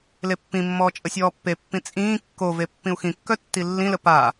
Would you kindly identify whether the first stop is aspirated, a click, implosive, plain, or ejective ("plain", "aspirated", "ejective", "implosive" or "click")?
plain